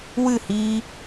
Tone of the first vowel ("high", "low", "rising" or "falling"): falling